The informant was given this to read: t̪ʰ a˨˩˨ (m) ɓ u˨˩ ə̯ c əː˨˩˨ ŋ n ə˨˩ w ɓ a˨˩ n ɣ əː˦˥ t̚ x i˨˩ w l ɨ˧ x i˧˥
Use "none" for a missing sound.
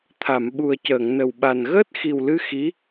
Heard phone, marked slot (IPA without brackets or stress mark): m